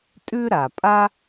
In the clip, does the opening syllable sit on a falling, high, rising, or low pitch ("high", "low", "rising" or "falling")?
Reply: high